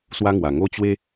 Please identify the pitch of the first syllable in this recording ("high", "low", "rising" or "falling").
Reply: high